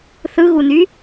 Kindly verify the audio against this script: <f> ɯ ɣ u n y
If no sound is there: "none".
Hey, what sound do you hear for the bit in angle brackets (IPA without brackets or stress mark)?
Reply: θ